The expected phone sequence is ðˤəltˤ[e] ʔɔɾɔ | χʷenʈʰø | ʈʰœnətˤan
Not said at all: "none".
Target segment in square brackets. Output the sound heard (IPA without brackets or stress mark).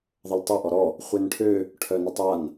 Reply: e